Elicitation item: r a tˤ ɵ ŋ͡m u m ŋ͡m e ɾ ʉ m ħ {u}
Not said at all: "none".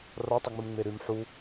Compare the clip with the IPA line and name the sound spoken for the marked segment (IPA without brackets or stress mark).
u